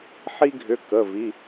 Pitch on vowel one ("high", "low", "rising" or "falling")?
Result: high